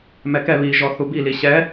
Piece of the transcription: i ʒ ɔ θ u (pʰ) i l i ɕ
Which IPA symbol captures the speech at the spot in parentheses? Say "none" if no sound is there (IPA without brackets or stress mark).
b